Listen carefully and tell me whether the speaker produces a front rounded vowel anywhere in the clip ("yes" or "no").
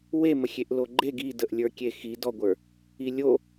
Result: no